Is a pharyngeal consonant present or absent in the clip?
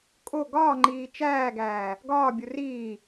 absent